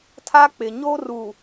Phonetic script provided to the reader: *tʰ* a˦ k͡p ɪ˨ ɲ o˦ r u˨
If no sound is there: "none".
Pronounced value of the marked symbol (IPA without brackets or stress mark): tʰ